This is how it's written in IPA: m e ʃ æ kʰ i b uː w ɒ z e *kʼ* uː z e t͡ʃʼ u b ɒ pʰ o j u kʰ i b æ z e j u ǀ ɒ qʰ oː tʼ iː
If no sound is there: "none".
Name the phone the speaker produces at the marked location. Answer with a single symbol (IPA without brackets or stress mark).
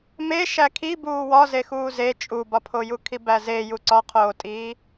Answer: x